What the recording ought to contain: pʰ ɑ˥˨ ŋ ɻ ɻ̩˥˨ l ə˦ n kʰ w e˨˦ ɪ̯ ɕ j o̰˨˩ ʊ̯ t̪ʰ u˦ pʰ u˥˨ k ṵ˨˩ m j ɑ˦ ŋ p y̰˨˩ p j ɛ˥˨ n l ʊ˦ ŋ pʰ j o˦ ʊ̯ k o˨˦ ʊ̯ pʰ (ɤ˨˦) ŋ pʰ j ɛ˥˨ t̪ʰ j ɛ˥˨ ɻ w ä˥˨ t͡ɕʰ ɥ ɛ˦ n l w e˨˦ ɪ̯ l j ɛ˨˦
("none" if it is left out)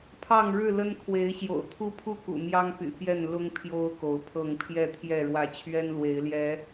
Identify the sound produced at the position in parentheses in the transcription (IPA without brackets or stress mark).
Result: ɤ˥˨